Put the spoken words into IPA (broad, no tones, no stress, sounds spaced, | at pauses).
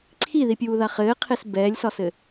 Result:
ǀʰ i ð i pʲ uː ð a χ ɘː qʰ e s b ɛː lʲ s ɒ s ɘ